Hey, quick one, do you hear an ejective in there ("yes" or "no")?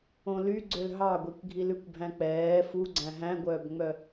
no